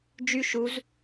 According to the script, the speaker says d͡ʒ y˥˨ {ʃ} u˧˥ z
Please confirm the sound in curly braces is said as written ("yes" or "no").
yes